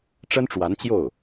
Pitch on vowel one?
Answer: high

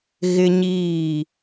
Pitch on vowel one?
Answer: high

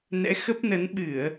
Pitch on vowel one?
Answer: rising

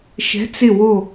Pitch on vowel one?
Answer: rising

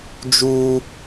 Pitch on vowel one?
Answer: high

